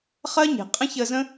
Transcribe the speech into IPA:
χɜ˦ɲe̤˨ qʼə̃˦çə˧zə̃˦

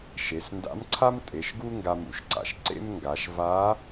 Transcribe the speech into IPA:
ʃe˩˧snda̰˧˥mǀʰa˥m tʼe˩˧ʃɡu˥ ŋɡa˧mṵ˩˧ʃǀa̰˩ʃ ǀḛ˥mŋɡa˩˧ʃ va˧˥

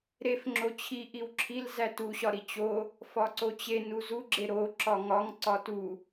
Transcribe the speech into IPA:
ɾef ŋ͡ǁot͡ɕʰi ʔiwǁʰil zætuɕɒ ɾit͡ɕo | fɒǀot͡ɕe nuzuɡ͡ǁe ɾo ǁɒŋɒŋ ǀɒtu

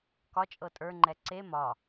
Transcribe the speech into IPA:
kɒt͡ʃʼɤ tʼə˞ŋ͡ǃɛ ǀe mɒ

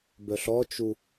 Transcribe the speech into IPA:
bœɬɔt͡ʃu

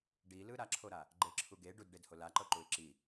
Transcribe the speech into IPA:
ɖilɯ ɾaǁʰoɾa | ɡ͡ǃeǁʰu ɡe ɖudɖedho laǃɤǃuɪ̯ ǁi

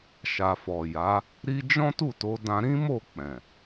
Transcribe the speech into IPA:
ʃa˨fɔ˨ja˨˦ | ɾi˦ d͡ʒɔ̃˦tu˦˨to˨˦ dã˧ɾĩ˦mo˦˨k͡pɛ̃˨

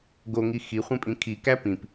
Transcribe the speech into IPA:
ɡoŋi xiχʷẽ pʼĩkʰi kæpĩp

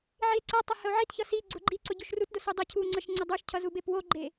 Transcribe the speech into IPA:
ʕie̯ǀʌtˤʌ həo̯ʕitçʌ si ɡ͡ǀʊɡ͡ǃiǀʊ ɟoʃrutdʊ sudˤəcʰu ŋ͡ǀəʃŋ͡ǀədˤuʃcʰʌ zubepwoɡ͡ǃe

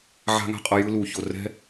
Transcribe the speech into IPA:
ʕa̤˦ŋa̤˦qʼʌ˧ jɯ˦lu˨ ço˨ rɛ̤˦

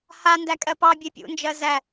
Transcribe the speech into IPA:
ha ndækʼɜpɑ bʲepʲṵ nd͡ʒɜzæ

